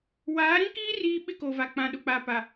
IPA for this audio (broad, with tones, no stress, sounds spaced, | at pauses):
w aː˨˦ ɾ ĩ˦ k iː˦ r iː˦ ɓ ɪ˦ k o˨ v a˨ k͡p ã˨ ɗ ʊ˨ k͡p a˨ p a˨